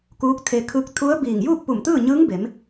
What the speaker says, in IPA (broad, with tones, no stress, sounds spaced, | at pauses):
k uː˧˥ k̚ t̪ʰ e˧ kʰ ɯː˧˥ k̚ t̪ʰ u˧˥ ə̯ b iː˧˩ ŋ j uː˥˨ k̚ p u˧˩ m t̪ ɯː˥˨ ɲ ɯː˧˥ ŋ b e˩˧ m